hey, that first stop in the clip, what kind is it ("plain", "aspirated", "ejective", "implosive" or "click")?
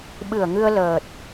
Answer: implosive